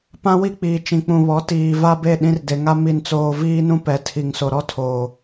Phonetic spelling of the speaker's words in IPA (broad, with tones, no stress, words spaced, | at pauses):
pã˦wi˦ k͡piː˨t͡ʃĩ˨k͡pũ˨βɔ˨˦ tiː˨va˦be˦˨ ɗĩ˦rde˨ ŋa˦ mi˨nt͡soː˨ viː˦nũ˦ pɛ˨tʰi˨ŋ so˨ɾɔ˦ tʰoː˨